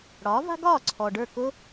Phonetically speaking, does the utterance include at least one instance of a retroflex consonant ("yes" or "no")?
yes